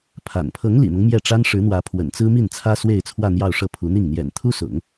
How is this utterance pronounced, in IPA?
pʰ a̰˨˩ n pʰ ɤ˧˥ ŋ l ḭ˨˩ n̪ ɤ˦ ŋ m j ɛ˥˩ ʈ͡ʂ a˥ n ʂ ɻ̩˧˥ n̪ w ä˧˥ pʰ w ə̰˨˩ n t͡s ɹ̩˥ m i˥˩ n t͡sʰ ä˥ s w e˥˧ ɪ̯ t͡sʰ w ä˥˧ n̪ j ɑ˥˧ ʊ̯ ʂ ɤ˥˩ pʰ u˧˥ n̪ i˥˩ ŋ n̪ j ɛ̰˨˩ n t̪ʰ u˥ s ʊ̰˨˩˦ ŋ

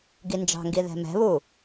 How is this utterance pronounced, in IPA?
ɡ i n d͡ʒ ɑ̤ ŋ ɡ i ð ɛ̤ m ɛ̤ β u

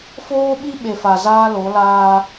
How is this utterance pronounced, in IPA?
f oː˦ ɓ i˦ ɓ e˨ f a˨ z aː˦ l o˨˦ l aː˦

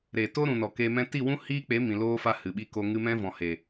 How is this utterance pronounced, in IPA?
ɾ eː˨ t oː˦ ɾ ũ˨ n ɔ˨ k eː˧ m ɛ̃˦ t i˦˨ w ũ˦ h iː˦ k͡p e˨˦ m ĩ˨ l oː˦ f a˦ h ɨ˨ ɓ i˧ k o˧ ŋ ɨ˧ m ɛ̃˦ v ɔ̃˨ h e˨

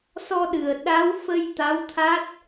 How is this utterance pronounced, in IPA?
s ɔ˧ ɗ ɨ˨˩ ə̯ ɗ a˧˥ w f ə˧ j t̪ a˧˥ w t̪ʰ a˦˥ t̚

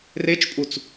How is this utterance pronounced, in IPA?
r e t͡ʃ pʼ u t͡s

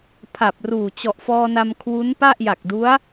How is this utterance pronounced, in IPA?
pʰ a˨˩ p̚ r uː˨˩ t͡ɕ ɔ˨˩ ʔ f ɔː˧ n a˧ m kʰ w u˦˥ n p a˥˩ ʔ j a˨˩ k̚ d u˦˥ a̯

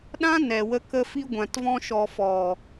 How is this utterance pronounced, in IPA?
ɗ ã˦ n ɛ˨ w ə˧ k ə˧ f i˧ ɡʷ ã˨ t v ɔ̃˧ ʃ ɔ˨ f ɔ˨

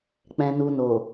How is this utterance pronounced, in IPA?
k͡p ɛ̃˨ n u˨ n o˨

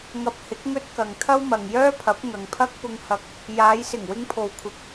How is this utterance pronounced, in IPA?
ŋ ɐ˧ p̚ h ɪ˨˥ k̚ ŋ ɵ˥ t̚ k ɐ˨ ŋ t̪ʰ ɐ˥ w m ɐ˨ ŋ j œː˥ pʰ ɐ˨˥ p̚ ŋ ɐ˨ ŋ pʰ ɐ˥ k̚ p ʊ˧ ŋ h ɐ˧ k̚ | j aː˨˧ j s ɪ˨˩ ŋ w ɪ˧ ŋ pʰ o˨ w kʷʰ ɪ˨˥ k̚

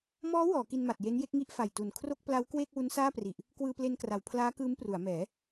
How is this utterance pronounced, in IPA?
m ɔː˦˥ w ɔː˩˦ k i˧ n m a˨˩ t̚ j e˦˥ n j e˦˥ k̚ ŋ i˥˩ ʔ f a˨˩ j t u˨˩ n kʰ r o˥˩ k̚ p l a˦˥ w k w eː˥˩ k̚ w u˦˥ n s aː˥˩ p r i˨˩ ʔ | k w ɯː˧ p l e˧ n k r a˩˦ w pʰ l aː˦˥ k ɯː˦˥ m p r u˩˦ a̯ m ɛː˩˦

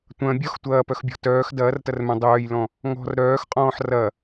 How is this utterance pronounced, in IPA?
tʷ ɐ̃ bʲ ɔ x tʷ ɐː p œ x bʲ ɔ̤ t œː x d ɐː r t ɐ r m œ̃ dˤ œː j l ɔ̃ | ŋ ɔ̤ r ɾ œː x qʼ ɔ̃ː ħ r ɐ

